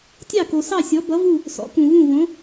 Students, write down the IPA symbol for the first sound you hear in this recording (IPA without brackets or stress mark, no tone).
tʲ